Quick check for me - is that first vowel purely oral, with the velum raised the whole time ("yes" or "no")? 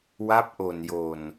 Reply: yes